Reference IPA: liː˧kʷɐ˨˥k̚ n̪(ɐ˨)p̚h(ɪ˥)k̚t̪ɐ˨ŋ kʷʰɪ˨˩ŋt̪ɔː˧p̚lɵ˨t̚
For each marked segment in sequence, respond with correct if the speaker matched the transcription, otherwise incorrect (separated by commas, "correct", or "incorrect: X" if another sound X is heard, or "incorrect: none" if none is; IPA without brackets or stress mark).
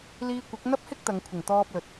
incorrect: ɐ˥, correct